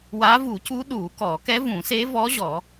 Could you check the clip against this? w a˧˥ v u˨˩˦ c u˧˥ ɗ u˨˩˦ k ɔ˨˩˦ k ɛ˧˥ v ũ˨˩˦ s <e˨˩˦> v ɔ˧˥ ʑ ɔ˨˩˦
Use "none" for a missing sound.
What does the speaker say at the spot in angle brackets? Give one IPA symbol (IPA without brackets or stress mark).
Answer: e˧˥